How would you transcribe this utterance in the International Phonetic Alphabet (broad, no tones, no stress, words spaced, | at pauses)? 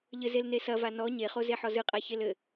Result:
ʎɘzel nesɐva nɔ ɲeχoze ħɔzɨqʼa çelɘ